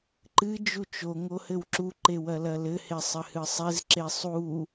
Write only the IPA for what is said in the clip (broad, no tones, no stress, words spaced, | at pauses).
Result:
ǃɨ d͡ʒut͡ʃo ŋohɘwǁu ǃewɐlɐlɘ hesˤɘhɨsˤez ǁesˤu